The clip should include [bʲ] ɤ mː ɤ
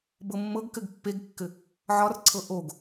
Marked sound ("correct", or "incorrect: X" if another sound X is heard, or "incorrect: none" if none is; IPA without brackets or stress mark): incorrect: b